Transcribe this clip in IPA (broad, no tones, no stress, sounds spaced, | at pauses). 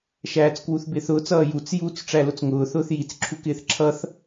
ʃ æː t͡s k w u θ b ɪː θ ʊː t͡s ʌː j u t͡s j u t͡s ʈ͡ʂ æ l ʊ t͡s ŋ ʊː θ ʊː θ j i t͡s ǁʰ u k ɪː θ ǁʰ ʌ θ